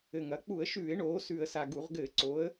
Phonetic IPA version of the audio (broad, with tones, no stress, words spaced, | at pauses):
ɘ˨˩ŋɐ˩˧ k͡pu˧˩˧ə̯ʃʉː˧˩˧ɪ̯ɳoː˩˧ sʉ˨˩ə̯sa˨˩ ɡu˧˩˧ʁ ɡɘː˧˩˧ǀo˩˧ə̯